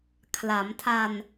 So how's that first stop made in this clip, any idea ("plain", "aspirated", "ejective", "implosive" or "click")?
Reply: aspirated